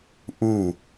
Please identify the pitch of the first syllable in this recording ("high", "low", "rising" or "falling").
falling